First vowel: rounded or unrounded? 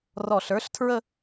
rounded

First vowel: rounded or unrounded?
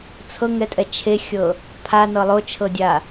unrounded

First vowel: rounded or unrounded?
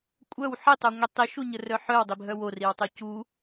rounded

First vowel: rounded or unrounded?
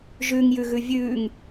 rounded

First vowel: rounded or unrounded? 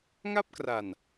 unrounded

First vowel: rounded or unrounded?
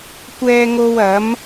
unrounded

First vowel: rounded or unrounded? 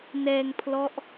unrounded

